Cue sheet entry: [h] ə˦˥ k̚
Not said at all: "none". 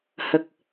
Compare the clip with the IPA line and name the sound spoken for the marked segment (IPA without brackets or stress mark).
h